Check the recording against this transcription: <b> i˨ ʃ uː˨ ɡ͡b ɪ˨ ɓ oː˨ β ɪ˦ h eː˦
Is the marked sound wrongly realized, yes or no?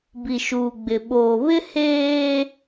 no